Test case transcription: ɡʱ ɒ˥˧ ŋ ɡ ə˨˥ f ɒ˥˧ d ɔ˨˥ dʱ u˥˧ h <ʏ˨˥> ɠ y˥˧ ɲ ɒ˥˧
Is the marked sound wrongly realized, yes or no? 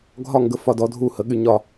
yes